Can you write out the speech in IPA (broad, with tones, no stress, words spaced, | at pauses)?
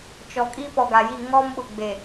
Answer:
t͡ʃɔ˨kʼi˦ pɔ˨ɡa˨ji˦˨ ŋɔ˦mɓʊ˨ɡ͡be˨